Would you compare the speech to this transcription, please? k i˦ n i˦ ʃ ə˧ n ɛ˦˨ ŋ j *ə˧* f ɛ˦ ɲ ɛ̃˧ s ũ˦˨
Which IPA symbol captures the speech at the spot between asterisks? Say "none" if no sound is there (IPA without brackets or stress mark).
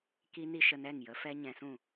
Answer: ə˨˦